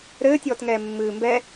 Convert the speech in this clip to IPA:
ɾ ɘː tʲ ɔː t ŋ ɛː mː ɨː m b ɛ

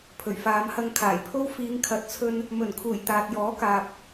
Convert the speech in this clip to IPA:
pʰ ɵ˨˩ ɥ f aː˨˧ m h ɐ˧ ŋ kʰ aː˨˩ j pʰ o˥ w f iː˨˧ ŋ kʰ ɐ˨˥ t̚ t͡sʰ ɵ˧ n | m ɵ˨˩ n kʰ uː˨˩ j t̪ aː˨ t̚ j ɔː˨˥ k aː˨ p̚

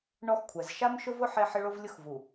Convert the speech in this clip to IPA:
ɳ ɔ˦ x kʷʰ ɛ˨ z ʃ a˦ m ʃ ʊ˦ v ʊ˦ ħ e˦ ħ ɪ˦ ɭ o˦ v lʲ ʊ˦ x v u˨

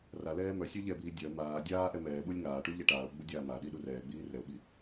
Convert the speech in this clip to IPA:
r a l ɛː m œ sʲ œ ʎ ɛ b iː dʲ œ m aː dʲ aː ʔ ɛ m ɛː ɓ u lʲ ŋ aː ʈ u ʎ ɛ ʈ aː ʊ̯ ɡ͡b u dʲ aː m a ɗ i ɗ u r ɛː ɡ͡b iː r ɛ ʊ̯ ɓ i

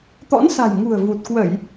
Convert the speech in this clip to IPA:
t̪ ɔ̰˧˥ n s a̤˨˩ j ŋ ṳ˨˩ ə̯ v u˨˩ t̚ k w ə˧˩˨ j

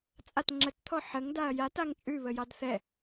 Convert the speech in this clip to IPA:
t͡sʼ a t ŋ͡ǁ ə t t̪ʰ ɔ ħ ə ŋ d a ɐ̯ j a t a ŋ t͡ʃʼ ʉ β ə j ɑ d θ ɛ

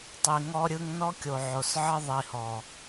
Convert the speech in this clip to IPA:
tˤ i˨ ŋ ɔ˦ ɾʲ ɯ˦ ŋ n ɔ˦ kʲ o˨ ʕ o˨ s ʕ ə˦ ðˤ i˨ h ɔ˨

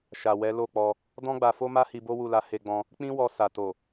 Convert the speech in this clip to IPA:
ʃ a˨ w ɛ˨˦ l o˦˨ k͡p ɔ˧ | d ɔ̃˦ ɡ͡b a˧ f o˦ m a˦ h i˧ b o˦ w u˦˨ l a˧ h e˧ ɡ͡b ɔ̃˧ | k͡p ĩ˦ w ɔ˧ s a˨ t o˨

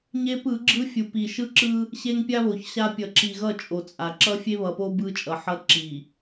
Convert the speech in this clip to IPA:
ɲ e˦ p ɯ˨˦ ɡ͡ǁ ɯ˦ fʲ u˨ p i˨ ʃ ɯ˦ ǁ ɯ˦ | ɕ e˦ ŋ pʲ a˦ β o˨ ç ɕ a˦ pʲ ʌ˨ ǁ i˨ ɣ ʌ˦˨ t͡ʃʼ o˨ t͡sʼ a˨ ǁ ʌ˦ fʲ e˦ β ʌ˨ p o˦ b ɯ˦ t͡ʃʼ ʌ˨ ħ ʌ˦ ǁ i˨

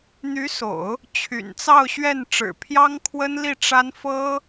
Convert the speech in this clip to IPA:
n̪ y˧˥ s o̰˨˩˦ ʊ̯ | t͡ɕʰ y̰˨˩ n t͡s ɑ˥˧ ʊ̯ ɕ ɥ ɛ˥˩ n ʈ͡ʂ ɻ̩˨˩ pʰ j ɑ˥ ŋ kʰ w ə˥ n l i˥˩ ʈ͡ʂ a˥ n f ɤ˥

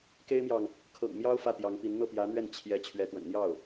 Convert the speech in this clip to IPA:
k e˥ ɪ̯ m j ɑ˨ ŋ | kʰ ɤ̰˨˩ ŋ m j ɑ˥ ʊ̯ f ä˥˩ t̪ j ɑ˧˥ ŋ p i˧˥ n n̪ ɤ˥˩ p j ä˧˥ n̪ ɥ ɛ˥˩ n t͡ɕʰ j ɛ˧˥ t͡ɕʰ ɥ ɛ˧˥ t̪ w ə̰˨˩ n n̪ j ɑ˥˩ ʊ̯

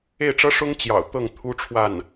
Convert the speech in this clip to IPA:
e˥˩ ɪ̯ ʈ͡ʂ ɤ˥ ʂ ʊ˥ ŋ t͡ɕ j ɑ̰˨˩ ʊ̯ t̪ ɤ˥˩ ŋ t̪ʰ u˥ ʈ͡ʂʰ w a˥˩ n

